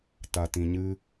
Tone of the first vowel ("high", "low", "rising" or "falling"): low